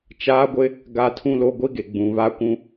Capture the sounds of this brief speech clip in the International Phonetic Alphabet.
t͡ʃaː˦ɡʷɪ˦ | ɡa˦tʰũ˦lo˦ ɡʷi˦ɡe˨ ɡ͡bũ˨βa˦kʷũ˦

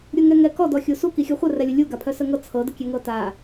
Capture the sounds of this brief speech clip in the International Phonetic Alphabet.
ɾʲuŋɛŋɛkɔ dɔxʲusu kixʲɤχʷə rɛlʲəlʲu ɡapʰœsəŋɤ t͡sʰɤ dəkʲɛŋɤta

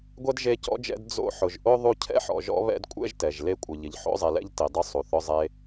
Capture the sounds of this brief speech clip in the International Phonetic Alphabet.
ɡʷɛ˥dʒe˦cɔ̰˥d͡ʒɛ̰˦d d͡zo̰˦ ħʊ˨ʒʔo˥ðˤu˦ cʰɛ̰˥ħɔ̰˨ʒɔ̰˦ βɛ̰˦dkʷʼɛ̰˥ʒtɛ˩ʒ le˦kʷʼɪ˨ʎɪ˨ʎ ħo̰˥zˤe˨lɛ̰˥ʎ ti˨dˤʊ˥ sˤu˩θʊ˦zˤe˦

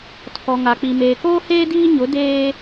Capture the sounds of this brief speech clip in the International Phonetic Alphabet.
tʰɔ˨ŋa˨k͡pi˨ meː˨koː˦heː˦ diː˦ɲʊ˨˦ deː˦

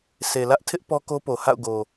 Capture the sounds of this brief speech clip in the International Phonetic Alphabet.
sʰe˨lä˦ʔ tʰɪ˦ʔ pɔ˦ko˦po˨ ha̰˦˨ʊ̯ɡo˨

